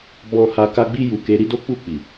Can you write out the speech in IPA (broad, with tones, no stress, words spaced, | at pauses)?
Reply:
bɔ̃˧ ha˧ ka˧ɡ͡bi˧ju˨ ke˧ɾi˦do˦k͡pu˦˨ k͡pi˨